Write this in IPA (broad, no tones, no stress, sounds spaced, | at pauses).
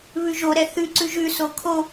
β ʉ ʒ o ɾ ɛ θ ʉ ǀ ʉ ʒ ʉ s o kʰ o